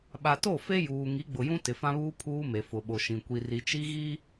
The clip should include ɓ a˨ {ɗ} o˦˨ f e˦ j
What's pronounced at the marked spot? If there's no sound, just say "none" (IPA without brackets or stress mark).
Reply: t